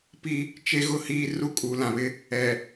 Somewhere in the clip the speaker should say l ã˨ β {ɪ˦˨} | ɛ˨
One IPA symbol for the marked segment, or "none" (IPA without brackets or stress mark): ɪ˦